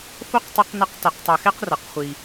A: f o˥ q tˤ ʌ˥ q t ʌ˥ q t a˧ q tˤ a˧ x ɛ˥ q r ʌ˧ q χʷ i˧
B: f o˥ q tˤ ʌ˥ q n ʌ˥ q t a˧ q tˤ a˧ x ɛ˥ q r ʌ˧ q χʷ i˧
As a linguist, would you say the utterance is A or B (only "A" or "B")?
B